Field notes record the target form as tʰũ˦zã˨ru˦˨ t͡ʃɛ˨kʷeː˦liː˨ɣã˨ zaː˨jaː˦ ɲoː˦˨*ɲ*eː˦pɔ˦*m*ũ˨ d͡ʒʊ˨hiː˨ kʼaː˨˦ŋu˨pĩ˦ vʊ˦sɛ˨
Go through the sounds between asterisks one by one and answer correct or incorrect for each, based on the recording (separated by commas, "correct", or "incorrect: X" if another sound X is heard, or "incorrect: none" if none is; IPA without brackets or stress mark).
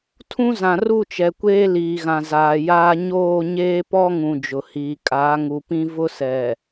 correct, incorrect: ŋ